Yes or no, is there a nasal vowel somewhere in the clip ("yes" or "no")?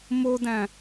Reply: yes